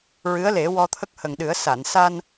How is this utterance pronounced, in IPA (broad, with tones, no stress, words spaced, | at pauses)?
ɹɨ˧˥ə̯le˨˩˦ wɔ˧t̪ʰə˦˥k̚hə˨˩ŋɗɨ˨˩˦ə̯ sa˨˩˨nsa˧n